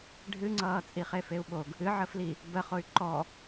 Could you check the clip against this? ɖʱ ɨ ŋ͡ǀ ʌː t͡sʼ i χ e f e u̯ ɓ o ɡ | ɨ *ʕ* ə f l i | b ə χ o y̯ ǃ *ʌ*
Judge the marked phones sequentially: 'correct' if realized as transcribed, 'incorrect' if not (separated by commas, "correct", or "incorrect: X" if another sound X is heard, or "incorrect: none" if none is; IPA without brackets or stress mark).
correct, incorrect: ɔ